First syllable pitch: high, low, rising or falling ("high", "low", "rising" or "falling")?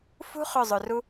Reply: high